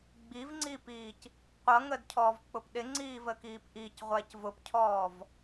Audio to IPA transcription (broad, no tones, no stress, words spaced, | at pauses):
ɡ͡bivŋ͡ǀiːpiːc | qʷʌŋədcʰɔːvk͡pʊp ɗɪŋ͡ǀiːvəkiːp ʔicʁʷæc vʊpcʰɔːv